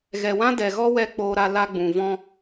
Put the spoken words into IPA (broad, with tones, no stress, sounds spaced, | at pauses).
ɣ ɛ˨ w ã˦ d ɛ˨ ɣ ɔ˦ w ɛ˧ k͡p oː˧ ɾ a˧ l a˦ ɡ͡b ũ˨ v ɔ̃˦